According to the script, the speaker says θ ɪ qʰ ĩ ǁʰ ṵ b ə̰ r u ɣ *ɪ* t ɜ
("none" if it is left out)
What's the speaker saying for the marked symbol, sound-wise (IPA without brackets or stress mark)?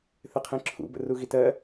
i